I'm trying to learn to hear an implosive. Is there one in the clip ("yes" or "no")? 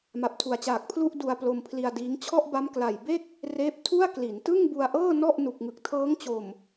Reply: no